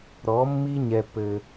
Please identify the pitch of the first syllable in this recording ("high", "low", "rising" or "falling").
rising